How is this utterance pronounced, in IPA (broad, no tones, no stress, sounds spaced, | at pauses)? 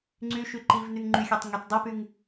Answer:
ŋ͡ǀ y ʃ y ǃ i v n y ŋ ŋ͡ǃ y xʲ ɛ tˤ ŋ y t dˤ y p y ŋ